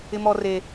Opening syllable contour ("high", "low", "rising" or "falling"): high